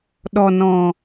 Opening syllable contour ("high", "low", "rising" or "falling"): low